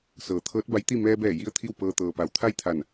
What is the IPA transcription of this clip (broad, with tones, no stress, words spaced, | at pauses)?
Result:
sɤː˩˧t̪ʰɤː˧˥t̚ ba˧˥jt̪i˥˨ mɛː˧bɛː˧˩ ji˥˨ə̯t̪ʰi˥˨wpɤː˧ t̪ɤː˩pa˩˧wt̪ʰa˥˨jt̪ʰa˧˩n